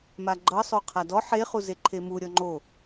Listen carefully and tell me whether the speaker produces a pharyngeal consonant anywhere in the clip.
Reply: yes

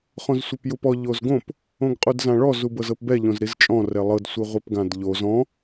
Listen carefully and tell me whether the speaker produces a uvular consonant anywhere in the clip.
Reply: yes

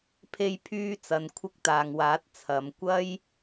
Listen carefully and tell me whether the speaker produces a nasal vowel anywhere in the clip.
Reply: no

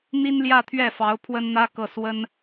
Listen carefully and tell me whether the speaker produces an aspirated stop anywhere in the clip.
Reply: yes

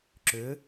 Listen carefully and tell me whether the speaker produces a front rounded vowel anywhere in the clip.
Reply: yes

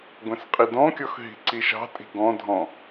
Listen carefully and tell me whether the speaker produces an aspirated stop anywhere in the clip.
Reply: no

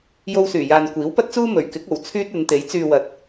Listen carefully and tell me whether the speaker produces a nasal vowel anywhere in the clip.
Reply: no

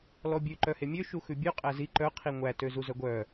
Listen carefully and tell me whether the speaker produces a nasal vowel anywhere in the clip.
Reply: no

